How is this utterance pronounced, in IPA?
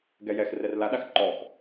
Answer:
ɡɛjɛx rɛrlaɗax ǃɔx

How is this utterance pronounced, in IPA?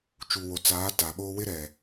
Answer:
t͡ʃu˨wo˨t͡saː˨˦ ta˨ɓo˦ wɪ˦ɾɛ˨

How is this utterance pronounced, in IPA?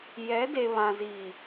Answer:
jɛ˨˦de˨ βã˨ziː˨

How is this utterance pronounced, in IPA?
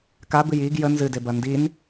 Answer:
kabɨj iɡ jə nzɨdebɐ ndin

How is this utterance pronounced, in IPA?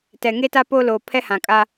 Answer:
tɛ˨ŋe˦ta˦ po˦loː˨ pʰɛ˦hã˨kʼa˦

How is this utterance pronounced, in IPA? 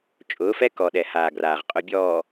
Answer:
t͡ʃʼʊː˨˦fɛ˦kɔ˨ɗɛ˨ haː˨ɡraː˨ʁ qʼʊ˨ bʲɔː˨

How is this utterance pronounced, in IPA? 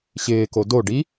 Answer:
ɕɪːko doɖi

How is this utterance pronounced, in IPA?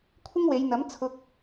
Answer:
kʷʰɪ˥ŋwe˨˧jn̪ɐ˨˥m t͡sʰʊ˥k̚

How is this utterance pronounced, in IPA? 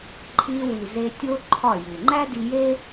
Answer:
ǃʰi˧wi˨ze˧ tʲo˦ ǃʰɒ˦˨ju˨ ŋ͡ǃæ˦di˧je˦

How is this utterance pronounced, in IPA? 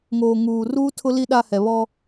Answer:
ŋoː˨ŋuː˨ruː˦ tʰʊ˦li˦ ɗa˦hɛ˨βɔ˦

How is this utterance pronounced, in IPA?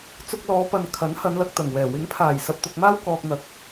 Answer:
t͡sʊ˧k̚lɔː˨˧pɐ˨n kʰɐ˨˥nhɐ˨˧n lɐ˧k̚t̪ɐ˨˩ŋwɛː˨˩ wɪ˨˥ŋpʰaː˨˩jsɐ˨p̚ t̪ʊ˨k̚maː˥wkɔː˨k̚n̪ɐ˨˥k̚

